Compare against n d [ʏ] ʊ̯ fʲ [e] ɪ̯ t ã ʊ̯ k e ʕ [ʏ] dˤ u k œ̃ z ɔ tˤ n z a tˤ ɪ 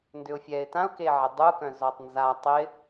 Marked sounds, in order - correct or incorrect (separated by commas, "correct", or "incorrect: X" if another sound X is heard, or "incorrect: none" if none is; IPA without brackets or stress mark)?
correct, incorrect: ɛ, incorrect: ɪ